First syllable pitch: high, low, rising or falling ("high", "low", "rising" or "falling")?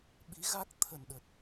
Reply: rising